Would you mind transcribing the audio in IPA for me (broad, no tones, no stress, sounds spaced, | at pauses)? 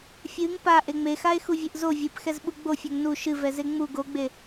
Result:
fʲ ɨ ŋ p a ʔ e ŋ͡m e x a e̯ x u vʲ e ʔ z o vʲ ɨ p x ɛ z ɓ u ɡ͡b o fʲ ɛ ŋ n u ʃ ɨ v ɛ z e ŋ͡m u ɡ o ɡ͡b e